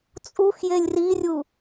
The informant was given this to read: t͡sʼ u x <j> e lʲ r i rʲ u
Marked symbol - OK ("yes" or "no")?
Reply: yes